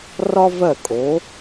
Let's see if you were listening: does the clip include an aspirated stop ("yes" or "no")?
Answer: no